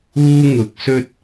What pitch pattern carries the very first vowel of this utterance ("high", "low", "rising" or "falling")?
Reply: high